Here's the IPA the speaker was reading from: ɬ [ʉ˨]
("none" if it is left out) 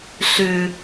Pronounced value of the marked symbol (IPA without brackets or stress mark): ʉ˨